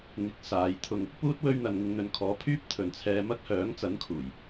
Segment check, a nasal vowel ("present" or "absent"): absent